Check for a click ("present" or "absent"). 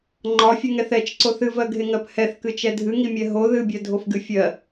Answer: present